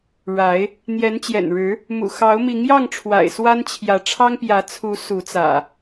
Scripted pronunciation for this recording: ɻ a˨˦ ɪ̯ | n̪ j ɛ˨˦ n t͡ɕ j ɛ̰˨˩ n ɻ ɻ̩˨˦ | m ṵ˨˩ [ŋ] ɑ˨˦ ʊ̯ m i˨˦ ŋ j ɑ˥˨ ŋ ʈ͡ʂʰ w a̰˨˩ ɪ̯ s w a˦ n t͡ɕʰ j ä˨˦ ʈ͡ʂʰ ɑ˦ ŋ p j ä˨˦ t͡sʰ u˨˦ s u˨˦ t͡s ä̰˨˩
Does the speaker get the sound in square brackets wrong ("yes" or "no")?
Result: yes